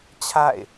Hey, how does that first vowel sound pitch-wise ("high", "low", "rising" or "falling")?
falling